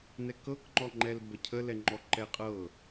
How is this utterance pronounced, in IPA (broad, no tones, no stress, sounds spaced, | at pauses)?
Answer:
n ɛ k ɤ k ŋ͡ǃ ɔ ŋ͡ǃ ɛ l b ə cʰ ə l ɛ ŋ͡ǃ ɔ ǃ ɛ qʼ ɤ